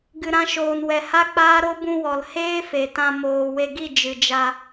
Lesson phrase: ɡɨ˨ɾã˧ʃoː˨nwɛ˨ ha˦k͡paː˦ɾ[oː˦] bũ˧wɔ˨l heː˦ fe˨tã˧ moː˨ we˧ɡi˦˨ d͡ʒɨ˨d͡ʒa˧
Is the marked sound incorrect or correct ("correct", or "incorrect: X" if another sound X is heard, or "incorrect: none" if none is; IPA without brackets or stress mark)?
incorrect: o˦